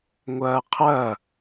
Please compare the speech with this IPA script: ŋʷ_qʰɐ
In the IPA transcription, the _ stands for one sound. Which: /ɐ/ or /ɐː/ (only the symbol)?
ɐː